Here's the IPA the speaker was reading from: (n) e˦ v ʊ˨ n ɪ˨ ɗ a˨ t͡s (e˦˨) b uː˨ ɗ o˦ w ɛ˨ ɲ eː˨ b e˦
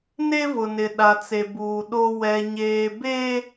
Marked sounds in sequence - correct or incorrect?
correct, incorrect: e˨

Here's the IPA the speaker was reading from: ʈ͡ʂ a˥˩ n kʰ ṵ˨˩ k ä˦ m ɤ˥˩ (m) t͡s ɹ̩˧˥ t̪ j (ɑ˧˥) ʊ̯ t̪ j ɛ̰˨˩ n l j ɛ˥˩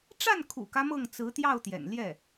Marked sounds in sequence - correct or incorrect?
incorrect: ŋ, incorrect: ɑ˥˩

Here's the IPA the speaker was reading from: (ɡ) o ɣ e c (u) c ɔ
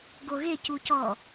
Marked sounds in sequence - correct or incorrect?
correct, correct

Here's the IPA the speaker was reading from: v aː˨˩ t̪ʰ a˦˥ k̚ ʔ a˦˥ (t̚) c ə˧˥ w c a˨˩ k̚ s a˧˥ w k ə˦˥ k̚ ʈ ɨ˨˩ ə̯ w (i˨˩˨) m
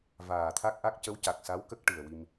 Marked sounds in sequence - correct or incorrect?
incorrect: k̚, incorrect: i˧

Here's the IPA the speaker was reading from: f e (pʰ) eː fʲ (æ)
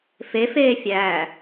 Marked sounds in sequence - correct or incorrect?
incorrect: f, correct

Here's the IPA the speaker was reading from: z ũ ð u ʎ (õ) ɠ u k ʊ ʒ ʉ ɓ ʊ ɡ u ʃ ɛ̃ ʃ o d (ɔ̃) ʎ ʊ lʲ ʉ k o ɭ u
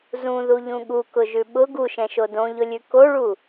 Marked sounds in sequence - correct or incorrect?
incorrect: ũ, incorrect: õ

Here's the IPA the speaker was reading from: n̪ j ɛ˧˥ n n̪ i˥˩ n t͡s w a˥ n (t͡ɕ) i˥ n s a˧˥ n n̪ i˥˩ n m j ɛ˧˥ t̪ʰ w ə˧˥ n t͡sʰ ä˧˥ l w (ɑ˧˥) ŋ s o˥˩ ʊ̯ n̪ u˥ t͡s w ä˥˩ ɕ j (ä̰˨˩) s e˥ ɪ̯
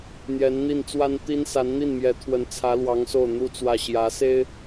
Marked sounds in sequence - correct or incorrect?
incorrect: t̪, correct, incorrect: ä˧˥

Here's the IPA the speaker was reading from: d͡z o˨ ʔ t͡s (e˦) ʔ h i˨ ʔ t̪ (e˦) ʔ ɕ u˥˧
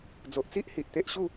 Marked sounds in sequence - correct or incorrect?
incorrect: i˦, correct

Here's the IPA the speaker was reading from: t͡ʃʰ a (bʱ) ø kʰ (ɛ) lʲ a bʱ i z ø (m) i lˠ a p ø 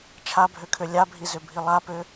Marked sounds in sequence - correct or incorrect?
correct, incorrect: ø, incorrect: bʱ

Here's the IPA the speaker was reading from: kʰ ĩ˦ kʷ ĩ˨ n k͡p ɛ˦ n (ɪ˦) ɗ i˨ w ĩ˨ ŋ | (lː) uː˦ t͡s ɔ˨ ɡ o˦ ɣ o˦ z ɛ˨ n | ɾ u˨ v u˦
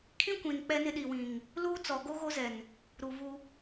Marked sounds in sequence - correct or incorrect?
correct, incorrect: l

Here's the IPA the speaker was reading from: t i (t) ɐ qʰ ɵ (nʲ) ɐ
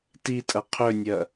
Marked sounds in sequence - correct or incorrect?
incorrect: tʼ, correct

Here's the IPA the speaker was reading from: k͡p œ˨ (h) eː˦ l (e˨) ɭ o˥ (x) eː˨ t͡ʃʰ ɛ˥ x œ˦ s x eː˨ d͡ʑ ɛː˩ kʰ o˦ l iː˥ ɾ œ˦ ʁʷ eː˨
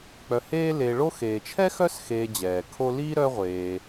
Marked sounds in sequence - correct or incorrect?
correct, correct, correct

